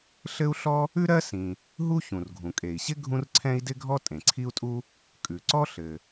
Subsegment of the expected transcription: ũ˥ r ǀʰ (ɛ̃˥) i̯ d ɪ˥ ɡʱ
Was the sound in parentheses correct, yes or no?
yes